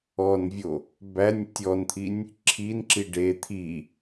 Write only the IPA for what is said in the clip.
ɔnvʲo | bænʲ tʲɔnt̪ʰinʲ | ǁʰinǁi ɖe t̪ʰi

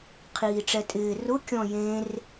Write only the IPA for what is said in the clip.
qʰiːʈ͡ʂɛtʼɪː rʊ kʲɔ̃jẽr

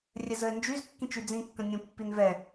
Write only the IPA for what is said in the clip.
rʲɛzəɪ̯nd͡ʒyz kːĩt͡ʃyd͡zĩ kːə̃nʲũ pːinvɛ

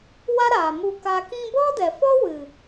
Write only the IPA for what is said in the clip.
wa˦ɾaː˨mu˧ka˧ kĩ˧bɔ˦dɛ˨fɔ˦ wɨ˨

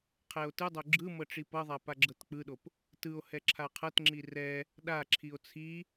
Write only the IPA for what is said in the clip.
qʰɛo̯tɯdˤo ɡ͡ǁɯmɤ ʈ͡ʂipɤðˤa paɡ͡ǁɤtk͡pɯɗop | tɯo̯hɛ ǁʰaqʰɤtŋ͡ǁi rɛ | ɗaǁʰio̯ t͡sʰi

